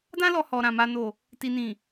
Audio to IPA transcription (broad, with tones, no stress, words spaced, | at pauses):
dã˦lɔ˧ hɔ˨ɾã˨ ma˧ no˨ | ti˨nĩ˨